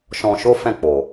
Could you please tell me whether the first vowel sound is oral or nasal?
nasal